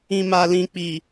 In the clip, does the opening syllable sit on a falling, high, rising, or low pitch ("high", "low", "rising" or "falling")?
low